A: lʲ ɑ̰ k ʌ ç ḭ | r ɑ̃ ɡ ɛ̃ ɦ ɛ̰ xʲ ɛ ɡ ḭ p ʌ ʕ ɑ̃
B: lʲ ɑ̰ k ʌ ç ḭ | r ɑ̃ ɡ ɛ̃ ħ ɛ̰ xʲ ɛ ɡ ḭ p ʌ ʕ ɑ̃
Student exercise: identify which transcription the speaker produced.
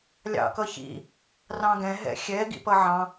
A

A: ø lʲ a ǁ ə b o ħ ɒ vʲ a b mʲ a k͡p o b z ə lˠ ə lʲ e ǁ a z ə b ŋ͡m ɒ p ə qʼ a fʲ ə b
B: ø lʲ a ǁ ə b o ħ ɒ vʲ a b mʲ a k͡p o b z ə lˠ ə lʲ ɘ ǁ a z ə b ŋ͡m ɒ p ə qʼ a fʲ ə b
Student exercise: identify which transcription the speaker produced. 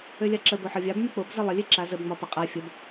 A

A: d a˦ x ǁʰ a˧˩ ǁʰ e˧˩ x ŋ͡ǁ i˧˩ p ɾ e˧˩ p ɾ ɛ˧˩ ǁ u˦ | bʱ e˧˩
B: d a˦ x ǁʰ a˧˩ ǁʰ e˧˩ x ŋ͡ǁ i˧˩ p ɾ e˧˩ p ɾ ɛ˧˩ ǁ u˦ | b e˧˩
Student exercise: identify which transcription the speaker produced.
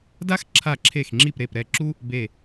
B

